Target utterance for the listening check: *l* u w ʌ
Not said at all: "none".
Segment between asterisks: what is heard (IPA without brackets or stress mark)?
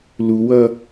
l